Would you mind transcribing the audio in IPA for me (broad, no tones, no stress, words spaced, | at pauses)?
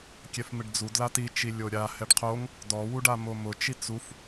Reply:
kʲɛfmɪɖd͡zu dlati t͡ʃilʲoɾʲa hɛɖqʰoŋ | dɔ wuɖamomʊ t͡ʃit͡suf